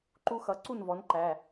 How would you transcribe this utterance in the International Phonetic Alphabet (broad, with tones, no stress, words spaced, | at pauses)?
ǃu˦xʌ˩˥ ǀu˥˩nvɔ˩˥nǃæ˩˧˩